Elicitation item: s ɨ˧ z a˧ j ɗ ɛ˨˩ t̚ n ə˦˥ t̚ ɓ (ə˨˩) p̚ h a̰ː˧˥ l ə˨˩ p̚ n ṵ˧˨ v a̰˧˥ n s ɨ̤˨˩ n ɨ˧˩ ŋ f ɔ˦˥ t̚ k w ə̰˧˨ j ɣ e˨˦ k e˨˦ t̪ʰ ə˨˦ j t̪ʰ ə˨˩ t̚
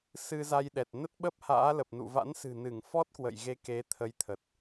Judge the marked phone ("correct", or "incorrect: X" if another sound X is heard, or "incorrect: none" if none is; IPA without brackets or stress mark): incorrect: ə˦˥